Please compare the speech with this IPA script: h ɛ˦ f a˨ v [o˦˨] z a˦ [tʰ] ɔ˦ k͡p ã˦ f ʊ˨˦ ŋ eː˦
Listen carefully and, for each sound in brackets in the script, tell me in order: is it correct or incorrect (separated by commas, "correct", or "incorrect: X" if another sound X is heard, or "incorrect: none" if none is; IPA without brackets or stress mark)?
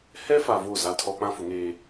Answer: correct, correct